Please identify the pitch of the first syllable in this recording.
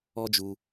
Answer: high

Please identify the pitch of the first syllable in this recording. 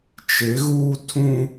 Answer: rising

